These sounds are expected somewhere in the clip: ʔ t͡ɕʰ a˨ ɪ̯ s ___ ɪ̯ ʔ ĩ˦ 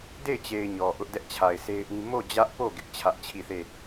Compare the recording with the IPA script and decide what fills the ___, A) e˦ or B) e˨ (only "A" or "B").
A